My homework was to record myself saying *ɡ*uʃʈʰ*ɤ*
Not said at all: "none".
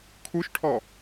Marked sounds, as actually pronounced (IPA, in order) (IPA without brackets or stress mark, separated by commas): kʰ, ɔ